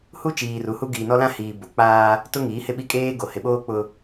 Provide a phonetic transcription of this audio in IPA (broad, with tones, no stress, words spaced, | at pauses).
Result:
hu˦t͡ʃiː˨ ru˨hu˦ ɡiː˨nɔ˦lã˦ hiː˨ bo˨k͡paː˦ | tʊ˦ŋiː˨˦hɪ˦˨ ɓi˦kʼeː˦ɡo˨ hɪ˨ ɓoː˦ k͡pʊ˦